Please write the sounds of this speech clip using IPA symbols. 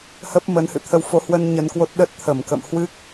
hə˦˥p̚mə˨˦n hɨ̰˧˨t̪ʰə˧wfo˨˦hwə˧n ɲə˧nkwo˦˥t̚ ɗə˦˥t̚t̪ʰə˧˩mkə̰˧˨m hwɨ˦˥k̚

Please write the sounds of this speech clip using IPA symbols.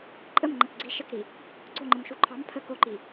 ǃʼəm ŋ͡ǃəkɡ͡ǀi ʃəkɾi | ɡ͡ǀoŋ͡ǃəm ʃuǃʰɑm pʰə koǃi

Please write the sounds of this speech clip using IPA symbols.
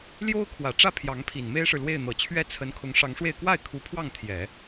ljo˥ʊ̯ kʰwä˨˩ʈ͡ʂä˥˩ pʰjɑ˧˥ŋpʰi˨˩nme˥ɪ̯ʂɻ̩˨ lwe˥˩ɪ̯n̪ɤ˨˩ t͡ɕʰɥɛ˥˩t͡sʰə˧˥nkʰʊ˧˥ŋ ʂɑ˧˥ŋʂwe˥˧ɪ̯ kwa˥˩ɪ̯ kʰu˧˥pʰwɑ˥˩ŋ t̪ʰjɛ˨˩˦

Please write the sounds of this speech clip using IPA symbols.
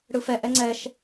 ɽɯfɛ ʔɛŋ͡ǀɛʃ

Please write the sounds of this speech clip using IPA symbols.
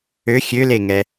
ø xʲøleŋɛ

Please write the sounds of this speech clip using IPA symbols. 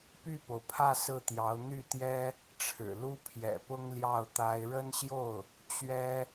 py˥˩po˩ʊ̯pʰä˥˧ sɹ̩˥˩t̪jɑ˧˥ʊ̯ n̪y˥˩t̪jɛ˥ | ʈ͡ʂʰɻ̩˨˩ lu˥pʰjɛ̰˨˩pʊ˥ŋ ljɑ˥˩ʊ̯t̪a˥ɪ̯ ɻə˥nɕjo˥˩ʊ̯ | t͡ɕɥɛ˥

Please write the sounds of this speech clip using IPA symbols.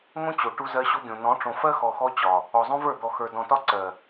ŋõ˦t͡ɕo˨ ʈu˦zɜ˦ɕo˦ɡʲõ˨ nɔ̃˨˦ʈ͡ʂõ˨fɜ˦xɔ˨ xɔ˦t͡ɕɒ˨ | ɔ˨zˤõ˦və˞˦˨ d̪ɔ˨xə˞˨ dɔ̃˨tɒ˦ǀɜ˨

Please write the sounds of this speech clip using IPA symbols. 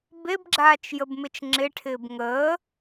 bebɡ͡ǁaːt͡ʃ jəbmɪt͡ʃŋ͡ǁɪʈʰɪːb ŋəː

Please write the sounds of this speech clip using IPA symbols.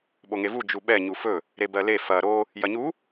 ɓoŋevu d͡ʒuɓɛ ɲufɵ | ɾebɜle fɐ ɾo | jɐɲu

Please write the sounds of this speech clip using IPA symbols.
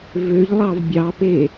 vøʎlˠɑv bʲɑpe

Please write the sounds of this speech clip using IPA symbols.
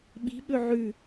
ɓi̤ɓɵ ʕʉ

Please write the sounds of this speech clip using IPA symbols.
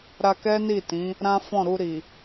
ɾa˧kɛ˦ ni˦˨tĩ˨˦ | ɾã˦fɔ̃˦˨ɾu˧ɾi˨

